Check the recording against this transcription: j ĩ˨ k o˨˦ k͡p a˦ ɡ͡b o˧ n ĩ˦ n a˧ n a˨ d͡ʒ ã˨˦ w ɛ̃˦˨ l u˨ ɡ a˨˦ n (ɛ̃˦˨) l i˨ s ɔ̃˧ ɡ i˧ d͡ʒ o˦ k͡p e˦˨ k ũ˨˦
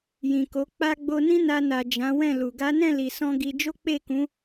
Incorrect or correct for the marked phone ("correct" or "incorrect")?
correct